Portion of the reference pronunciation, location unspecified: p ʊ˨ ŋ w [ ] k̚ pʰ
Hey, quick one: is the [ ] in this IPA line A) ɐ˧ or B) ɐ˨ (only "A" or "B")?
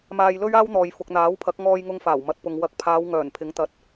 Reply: B